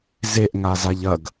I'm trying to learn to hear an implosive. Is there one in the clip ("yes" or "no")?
no